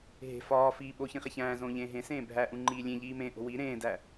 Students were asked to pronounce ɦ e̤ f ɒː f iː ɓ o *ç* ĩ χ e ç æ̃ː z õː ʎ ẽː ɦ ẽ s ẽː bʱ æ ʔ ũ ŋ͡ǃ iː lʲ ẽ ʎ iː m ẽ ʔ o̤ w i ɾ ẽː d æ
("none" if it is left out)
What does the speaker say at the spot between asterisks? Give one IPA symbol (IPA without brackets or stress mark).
ç